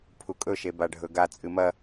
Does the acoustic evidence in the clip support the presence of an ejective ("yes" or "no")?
yes